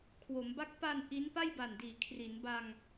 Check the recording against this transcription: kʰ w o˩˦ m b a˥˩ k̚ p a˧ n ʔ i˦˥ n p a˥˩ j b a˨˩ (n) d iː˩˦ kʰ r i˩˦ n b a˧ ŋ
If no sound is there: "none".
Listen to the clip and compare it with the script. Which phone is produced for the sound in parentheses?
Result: n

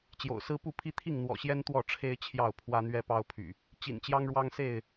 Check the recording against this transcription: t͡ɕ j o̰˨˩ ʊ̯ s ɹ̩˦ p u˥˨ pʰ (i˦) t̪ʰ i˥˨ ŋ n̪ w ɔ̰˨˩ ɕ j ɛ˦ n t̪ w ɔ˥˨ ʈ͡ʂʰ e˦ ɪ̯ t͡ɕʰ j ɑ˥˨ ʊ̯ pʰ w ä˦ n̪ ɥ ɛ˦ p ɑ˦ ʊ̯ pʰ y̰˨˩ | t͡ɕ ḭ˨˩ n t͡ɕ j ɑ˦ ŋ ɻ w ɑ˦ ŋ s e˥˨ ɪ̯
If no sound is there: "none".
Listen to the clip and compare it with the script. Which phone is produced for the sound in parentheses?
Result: i˦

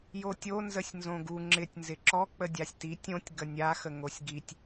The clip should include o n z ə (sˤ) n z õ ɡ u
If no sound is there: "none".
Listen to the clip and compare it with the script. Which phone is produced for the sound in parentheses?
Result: sʲ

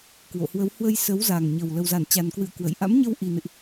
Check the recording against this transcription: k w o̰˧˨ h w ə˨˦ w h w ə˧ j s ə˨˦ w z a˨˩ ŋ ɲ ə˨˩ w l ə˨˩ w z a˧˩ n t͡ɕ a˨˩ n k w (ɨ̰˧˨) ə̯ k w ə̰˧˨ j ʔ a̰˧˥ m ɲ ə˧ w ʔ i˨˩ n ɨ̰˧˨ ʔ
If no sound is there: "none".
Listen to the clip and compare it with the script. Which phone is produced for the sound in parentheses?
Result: ɨ̰˧˨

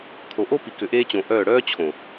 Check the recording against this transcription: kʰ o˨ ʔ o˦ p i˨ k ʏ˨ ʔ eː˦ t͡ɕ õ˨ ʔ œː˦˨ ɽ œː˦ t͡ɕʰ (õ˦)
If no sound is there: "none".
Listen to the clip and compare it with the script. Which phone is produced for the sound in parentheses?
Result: õ˨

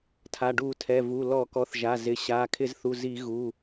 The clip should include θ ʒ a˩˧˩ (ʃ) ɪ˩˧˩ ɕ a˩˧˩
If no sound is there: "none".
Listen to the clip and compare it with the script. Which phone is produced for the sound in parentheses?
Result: z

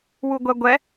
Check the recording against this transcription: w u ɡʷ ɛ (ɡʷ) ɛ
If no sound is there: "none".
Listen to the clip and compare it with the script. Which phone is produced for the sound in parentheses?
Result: ɡʷ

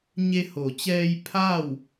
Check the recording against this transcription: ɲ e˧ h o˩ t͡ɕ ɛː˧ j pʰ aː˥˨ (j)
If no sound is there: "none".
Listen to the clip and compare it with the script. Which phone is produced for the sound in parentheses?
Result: w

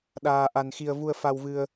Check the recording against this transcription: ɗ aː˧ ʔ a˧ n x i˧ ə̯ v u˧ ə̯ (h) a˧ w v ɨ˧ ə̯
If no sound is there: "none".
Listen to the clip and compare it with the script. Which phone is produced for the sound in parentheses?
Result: f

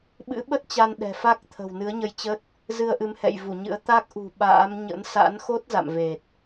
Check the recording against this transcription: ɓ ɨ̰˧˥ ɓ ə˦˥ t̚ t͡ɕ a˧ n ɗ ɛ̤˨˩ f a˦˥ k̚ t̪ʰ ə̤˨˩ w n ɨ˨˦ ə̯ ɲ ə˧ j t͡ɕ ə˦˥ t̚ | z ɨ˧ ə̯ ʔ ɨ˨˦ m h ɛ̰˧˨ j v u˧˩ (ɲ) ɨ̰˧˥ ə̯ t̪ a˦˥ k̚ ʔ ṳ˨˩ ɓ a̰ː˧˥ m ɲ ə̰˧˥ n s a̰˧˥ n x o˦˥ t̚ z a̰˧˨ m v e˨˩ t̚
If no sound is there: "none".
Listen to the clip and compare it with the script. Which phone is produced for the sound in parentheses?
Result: ɲ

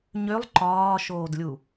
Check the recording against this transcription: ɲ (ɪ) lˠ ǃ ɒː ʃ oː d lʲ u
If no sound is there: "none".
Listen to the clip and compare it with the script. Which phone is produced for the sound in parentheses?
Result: ʏ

